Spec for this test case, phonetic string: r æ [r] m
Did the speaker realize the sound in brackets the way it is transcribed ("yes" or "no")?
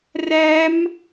no